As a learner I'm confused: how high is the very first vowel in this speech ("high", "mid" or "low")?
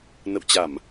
mid